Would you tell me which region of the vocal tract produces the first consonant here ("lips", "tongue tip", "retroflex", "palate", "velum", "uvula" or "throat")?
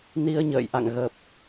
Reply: tongue tip